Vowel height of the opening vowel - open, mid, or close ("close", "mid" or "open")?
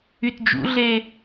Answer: close